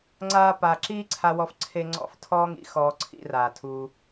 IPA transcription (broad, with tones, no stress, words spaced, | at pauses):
ŋ͡ǀaː˦paː˧ ǁiː˦ǀʰa˧wɔ˧fǀʰe˧ ŋ͡ǀɔ̰˧f tʰɔː˦ŋḭ˦ xɔː˧ǀʰḭ˧raː˨tʰuː˧